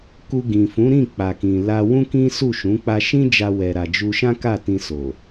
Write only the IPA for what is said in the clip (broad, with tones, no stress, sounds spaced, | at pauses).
k u˧ ɡ ĩ˨ f ũ˨˦ ɾ ĩ˦˨ k͡p a˨ k ĩ˨ l a˧ w ũ˦ k ĩ˦ s u˦˨ ʃ ũ˨˦ k͡p a˧ ʃ ĩ˦ d͡ʒ a˧ w ɛ˨ ɾ a˨ d͡ʒ u˧ ʃ ã˦ k a˦˨ t ĩ˧ s o˨